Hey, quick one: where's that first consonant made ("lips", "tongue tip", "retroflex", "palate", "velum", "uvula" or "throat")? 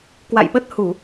velum